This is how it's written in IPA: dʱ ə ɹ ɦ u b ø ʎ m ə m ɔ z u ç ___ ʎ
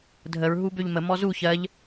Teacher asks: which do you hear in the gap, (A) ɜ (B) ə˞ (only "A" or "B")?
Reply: A